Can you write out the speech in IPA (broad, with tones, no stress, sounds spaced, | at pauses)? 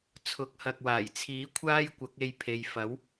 t͡sʰ ʊ˨˥ k̚ h ɐ˨ k̚ w aː˨˩ j t͡sʰ iː˨˥ kʷʰ aː˥ j kʷ ɐ˨˥ k̚ e˧ j pʰ e˨ j f ɐ˨˥ w